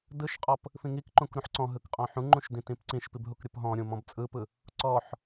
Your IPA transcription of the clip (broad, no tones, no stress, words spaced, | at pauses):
dɯʃqʼɔp | fĩŋikǃũk ɾũħǀɔ̃ɦɯk qʼɔ̃ħũŋ͡ǃũʃ dĩtĩpǀĩʃpib ɦukɾʲɯpɦɔ̃ɾʲũ mɔ̃bt͡sʼɯpɯ | ǀɔħ